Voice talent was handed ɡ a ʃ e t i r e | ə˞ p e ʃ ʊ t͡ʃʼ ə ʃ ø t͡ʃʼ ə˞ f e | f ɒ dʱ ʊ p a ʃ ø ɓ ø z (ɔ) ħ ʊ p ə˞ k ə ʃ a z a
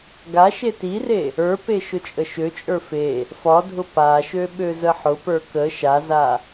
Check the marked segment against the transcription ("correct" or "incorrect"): incorrect